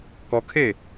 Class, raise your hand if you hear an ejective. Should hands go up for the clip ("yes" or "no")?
no